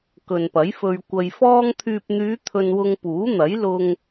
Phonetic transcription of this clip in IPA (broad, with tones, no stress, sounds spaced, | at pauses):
k ɵ˨ n p ɐ˨˥ j f ɵ˧ ɥ kʷ ɐ˧ j f ɔː˧ ŋ t̪ʰ yː˨ p̚ n̪ yː˨˧ t̪ʰ ɵ˧ n w ʊ˧ ŋ p uː˨˥ n̪ ɐ˨˥ j l ʊ˧ ŋ